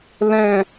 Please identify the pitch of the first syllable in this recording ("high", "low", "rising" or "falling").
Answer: falling